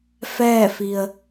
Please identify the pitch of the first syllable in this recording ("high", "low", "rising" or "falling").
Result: falling